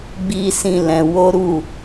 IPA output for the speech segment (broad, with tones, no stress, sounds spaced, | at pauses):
ɡ͡b i˦ s ĩ˦˨ l ɛ̃˨˦ w o˦ ɾ u˦˨